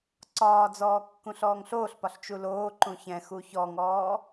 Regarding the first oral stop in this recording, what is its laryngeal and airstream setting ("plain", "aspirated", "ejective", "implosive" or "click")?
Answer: click